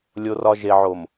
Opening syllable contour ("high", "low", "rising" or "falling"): low